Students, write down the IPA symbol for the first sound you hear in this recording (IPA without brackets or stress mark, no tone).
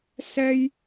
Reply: s